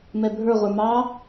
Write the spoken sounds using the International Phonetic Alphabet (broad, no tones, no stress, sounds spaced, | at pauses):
m ɛ bʱ ə˞ ʁʷ ə˞ m ɑ